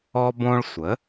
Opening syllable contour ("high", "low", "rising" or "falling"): high